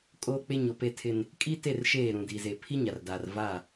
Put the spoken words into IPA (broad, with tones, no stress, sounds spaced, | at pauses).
kʼ oː˦ k͡p e˦ ɲ o˨ p e˦˨ tʰ ɪ˦ n | kʼ i˦ t e˦˨ r ʃ eː˦˨ ɾ ũ˨ d i˨ z e˨ pʰ i˦ ɲ a˨ r d a˨ r v a˦˨